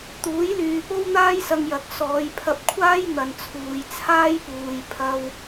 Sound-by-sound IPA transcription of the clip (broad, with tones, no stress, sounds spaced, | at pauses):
t̪ uː˨˥ j l yː˨ p o˥ w n̪ aː˥ j s ɐ˧ ŋ j ɐ˨ k̚ s ɔː˨˧ j pʰ ɐ˧ p̚ kʷʰ aː˥ j n̪ ɐ˨ n t͡sʰ uː˨ j t͡sʰ aː˥ j p uː˨ j pʰ ɐ˧ w